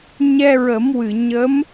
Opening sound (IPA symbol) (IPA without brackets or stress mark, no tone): ɲ